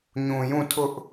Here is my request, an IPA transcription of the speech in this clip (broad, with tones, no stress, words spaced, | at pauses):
ɲũ˨jũ˦˨ tʰʊ˦ʔ